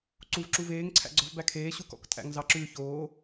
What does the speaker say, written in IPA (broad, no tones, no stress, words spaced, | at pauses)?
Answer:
ǀuv ǁuveːŋ ǀʰæ̰ɡ͡ǀɔv bækʰeː ɕukɔ̰ktʼæ̰ŋ zɑǁʉ çoː